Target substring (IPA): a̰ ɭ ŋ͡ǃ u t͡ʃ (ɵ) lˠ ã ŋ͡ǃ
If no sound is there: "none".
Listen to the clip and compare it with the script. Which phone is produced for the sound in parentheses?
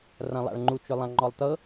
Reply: ɵ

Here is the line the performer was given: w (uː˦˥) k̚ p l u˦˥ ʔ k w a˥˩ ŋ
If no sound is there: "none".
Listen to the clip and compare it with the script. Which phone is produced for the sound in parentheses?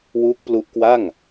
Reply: uː˦˥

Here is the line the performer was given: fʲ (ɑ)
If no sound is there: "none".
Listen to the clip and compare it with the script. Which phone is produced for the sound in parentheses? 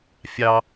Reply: ɑ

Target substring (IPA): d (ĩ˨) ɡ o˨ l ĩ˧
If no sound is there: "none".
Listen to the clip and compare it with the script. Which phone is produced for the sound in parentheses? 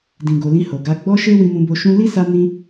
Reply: ĩ˨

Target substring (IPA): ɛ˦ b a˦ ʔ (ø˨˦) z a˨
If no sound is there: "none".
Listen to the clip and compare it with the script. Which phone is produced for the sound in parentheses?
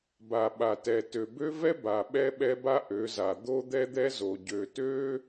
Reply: ø˨˦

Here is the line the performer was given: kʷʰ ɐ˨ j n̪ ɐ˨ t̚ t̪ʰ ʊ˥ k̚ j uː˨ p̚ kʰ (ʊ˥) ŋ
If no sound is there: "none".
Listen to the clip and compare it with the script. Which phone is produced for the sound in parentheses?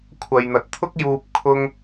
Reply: ʊ˧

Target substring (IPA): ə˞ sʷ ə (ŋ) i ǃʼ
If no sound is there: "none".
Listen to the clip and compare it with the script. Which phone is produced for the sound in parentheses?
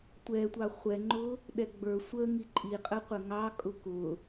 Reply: ŋ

